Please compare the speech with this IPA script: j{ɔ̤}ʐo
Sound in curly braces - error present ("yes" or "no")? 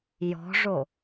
no